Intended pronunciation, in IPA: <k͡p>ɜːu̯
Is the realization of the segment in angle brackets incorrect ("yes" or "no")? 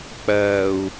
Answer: no